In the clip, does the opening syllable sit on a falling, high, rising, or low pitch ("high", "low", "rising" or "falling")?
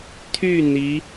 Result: falling